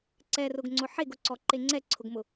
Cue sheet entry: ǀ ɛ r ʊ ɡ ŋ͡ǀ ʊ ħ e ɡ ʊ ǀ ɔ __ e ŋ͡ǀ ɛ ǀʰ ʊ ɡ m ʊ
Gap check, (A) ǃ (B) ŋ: A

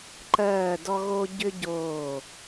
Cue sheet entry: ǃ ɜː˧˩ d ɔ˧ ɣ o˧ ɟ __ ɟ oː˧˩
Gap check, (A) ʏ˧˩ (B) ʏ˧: B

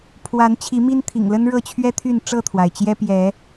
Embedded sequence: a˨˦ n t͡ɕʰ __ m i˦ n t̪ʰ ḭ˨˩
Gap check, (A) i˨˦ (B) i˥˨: A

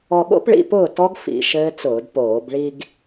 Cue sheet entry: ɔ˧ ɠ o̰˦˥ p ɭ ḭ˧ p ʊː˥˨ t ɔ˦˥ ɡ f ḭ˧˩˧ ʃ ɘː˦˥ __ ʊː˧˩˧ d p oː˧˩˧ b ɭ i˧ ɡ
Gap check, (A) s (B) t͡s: B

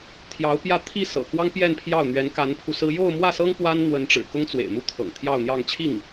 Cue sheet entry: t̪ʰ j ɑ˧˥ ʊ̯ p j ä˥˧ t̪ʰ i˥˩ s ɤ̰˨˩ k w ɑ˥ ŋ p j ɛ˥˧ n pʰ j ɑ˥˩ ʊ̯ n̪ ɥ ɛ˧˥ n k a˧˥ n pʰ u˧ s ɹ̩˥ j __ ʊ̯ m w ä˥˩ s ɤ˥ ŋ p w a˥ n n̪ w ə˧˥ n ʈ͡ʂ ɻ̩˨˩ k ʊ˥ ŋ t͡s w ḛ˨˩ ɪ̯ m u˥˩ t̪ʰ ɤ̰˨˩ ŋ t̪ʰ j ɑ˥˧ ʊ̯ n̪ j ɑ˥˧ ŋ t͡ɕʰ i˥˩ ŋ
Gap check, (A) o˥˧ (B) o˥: A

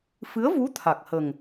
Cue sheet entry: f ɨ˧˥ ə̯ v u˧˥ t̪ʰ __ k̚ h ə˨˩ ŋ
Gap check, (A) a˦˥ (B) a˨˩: B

